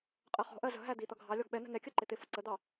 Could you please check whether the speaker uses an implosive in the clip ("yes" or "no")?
yes